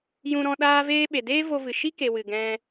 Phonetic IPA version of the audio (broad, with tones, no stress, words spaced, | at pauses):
jũ˧ɾɔ̃˧ ɗaː˦veː˦ ɓe˨deː˦vo˧vɨ˨ ʃi˦ke˨ wɨ˨ ɡɛ̃˧